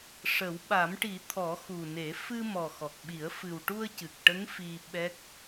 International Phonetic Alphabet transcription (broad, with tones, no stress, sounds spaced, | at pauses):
ʂ ə˨˩˦ w ɓ a˨˩˦ m ʈ i˨˩˦ t̪ʰ ɔ˨˩˦ x u˨˩ n e˨˩˦ f ɨ˧ m ɔ˨˩ x ɔ˨˩ k̚ ɓ i˨˩˦ ə̯ f ɨ˨˩ w ʈ u˧ ə̯ c ɨ˨˩ k̚ ʈ ə˧˥ ŋ f i˧ ɓ ɛ˦˥ k̚